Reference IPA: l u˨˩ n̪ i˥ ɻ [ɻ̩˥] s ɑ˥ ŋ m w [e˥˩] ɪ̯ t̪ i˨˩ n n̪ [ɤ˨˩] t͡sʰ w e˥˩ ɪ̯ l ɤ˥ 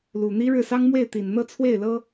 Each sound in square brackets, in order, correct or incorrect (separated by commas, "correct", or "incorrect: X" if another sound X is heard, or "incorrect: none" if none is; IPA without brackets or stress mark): incorrect: ɻ̩˥˩, correct, incorrect: ɤ˥˧